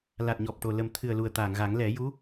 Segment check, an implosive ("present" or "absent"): absent